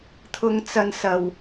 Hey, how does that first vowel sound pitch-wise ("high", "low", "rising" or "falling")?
high